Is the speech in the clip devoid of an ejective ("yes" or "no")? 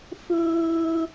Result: yes